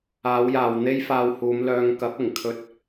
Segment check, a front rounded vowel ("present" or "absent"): present